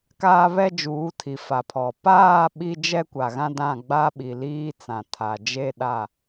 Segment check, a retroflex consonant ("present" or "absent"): absent